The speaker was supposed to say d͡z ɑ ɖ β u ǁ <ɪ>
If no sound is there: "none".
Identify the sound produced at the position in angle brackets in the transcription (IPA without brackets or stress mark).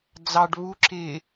ɪ